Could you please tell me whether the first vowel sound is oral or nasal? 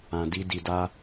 nasal